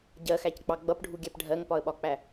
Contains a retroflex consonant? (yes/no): yes